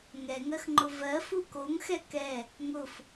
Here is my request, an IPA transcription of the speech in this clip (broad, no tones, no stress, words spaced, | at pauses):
ŋɛŋɜxŋ͡ǃʊ vɜ fukoŋ xɛkɛ | ŋʊf